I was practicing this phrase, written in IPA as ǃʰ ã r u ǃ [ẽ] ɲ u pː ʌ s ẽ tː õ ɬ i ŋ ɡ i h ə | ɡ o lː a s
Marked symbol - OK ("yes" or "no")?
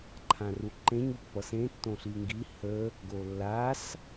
yes